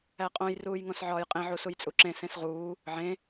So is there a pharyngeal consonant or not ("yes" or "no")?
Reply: yes